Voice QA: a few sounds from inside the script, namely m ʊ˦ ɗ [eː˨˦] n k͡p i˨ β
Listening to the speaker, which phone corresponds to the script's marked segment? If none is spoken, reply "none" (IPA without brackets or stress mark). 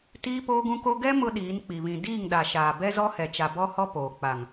iː˨˦